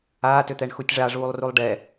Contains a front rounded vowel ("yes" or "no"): yes